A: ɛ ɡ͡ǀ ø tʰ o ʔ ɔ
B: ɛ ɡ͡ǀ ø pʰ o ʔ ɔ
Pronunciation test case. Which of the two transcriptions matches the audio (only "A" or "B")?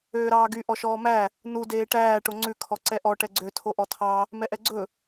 A